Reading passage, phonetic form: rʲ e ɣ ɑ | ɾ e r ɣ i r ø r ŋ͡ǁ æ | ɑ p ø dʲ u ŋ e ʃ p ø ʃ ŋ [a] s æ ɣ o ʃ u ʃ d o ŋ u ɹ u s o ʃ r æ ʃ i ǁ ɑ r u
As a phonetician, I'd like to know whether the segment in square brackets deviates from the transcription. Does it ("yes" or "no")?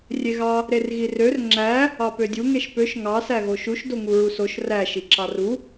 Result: yes